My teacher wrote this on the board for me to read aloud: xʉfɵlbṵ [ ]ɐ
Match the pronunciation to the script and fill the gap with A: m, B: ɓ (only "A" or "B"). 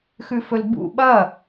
B